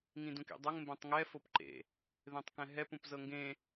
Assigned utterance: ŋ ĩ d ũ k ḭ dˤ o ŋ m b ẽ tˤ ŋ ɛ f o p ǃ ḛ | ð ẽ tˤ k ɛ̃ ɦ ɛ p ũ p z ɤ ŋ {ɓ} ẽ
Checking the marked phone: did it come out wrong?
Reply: yes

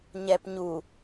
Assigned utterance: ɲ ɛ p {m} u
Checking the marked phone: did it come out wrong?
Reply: yes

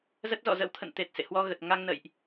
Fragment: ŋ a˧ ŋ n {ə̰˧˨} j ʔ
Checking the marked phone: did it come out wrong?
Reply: no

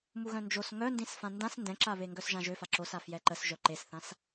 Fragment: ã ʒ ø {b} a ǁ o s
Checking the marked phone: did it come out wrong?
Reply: yes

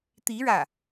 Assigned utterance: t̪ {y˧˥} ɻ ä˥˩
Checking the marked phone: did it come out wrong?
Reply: yes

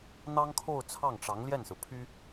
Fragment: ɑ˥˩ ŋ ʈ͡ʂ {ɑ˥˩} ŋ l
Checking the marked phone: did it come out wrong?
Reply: yes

